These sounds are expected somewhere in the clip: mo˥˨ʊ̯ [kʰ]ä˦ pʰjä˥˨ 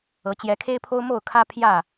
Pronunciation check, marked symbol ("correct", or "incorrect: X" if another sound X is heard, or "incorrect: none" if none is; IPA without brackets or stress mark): correct